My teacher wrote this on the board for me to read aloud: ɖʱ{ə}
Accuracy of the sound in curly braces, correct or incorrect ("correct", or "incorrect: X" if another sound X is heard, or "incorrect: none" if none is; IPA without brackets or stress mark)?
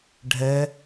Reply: incorrect: ɛ